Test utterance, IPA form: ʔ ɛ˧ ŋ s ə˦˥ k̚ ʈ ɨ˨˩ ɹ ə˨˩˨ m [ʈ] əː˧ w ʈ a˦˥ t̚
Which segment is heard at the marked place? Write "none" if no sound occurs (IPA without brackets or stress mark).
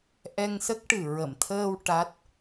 t̪ʰ